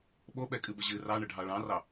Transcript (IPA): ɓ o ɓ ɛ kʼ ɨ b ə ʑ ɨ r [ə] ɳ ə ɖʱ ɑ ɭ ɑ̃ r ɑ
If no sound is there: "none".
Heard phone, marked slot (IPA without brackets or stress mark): ɑ